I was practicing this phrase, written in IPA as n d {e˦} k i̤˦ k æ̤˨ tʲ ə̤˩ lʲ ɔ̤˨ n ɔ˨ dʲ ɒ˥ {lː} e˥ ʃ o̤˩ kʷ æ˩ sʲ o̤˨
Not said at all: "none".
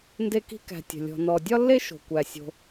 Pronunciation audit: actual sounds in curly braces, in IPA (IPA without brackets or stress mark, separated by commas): e˦, lː